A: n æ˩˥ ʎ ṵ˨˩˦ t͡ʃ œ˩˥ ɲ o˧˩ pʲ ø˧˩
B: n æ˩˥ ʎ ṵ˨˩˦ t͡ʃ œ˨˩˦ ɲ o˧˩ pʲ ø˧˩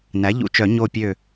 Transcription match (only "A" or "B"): B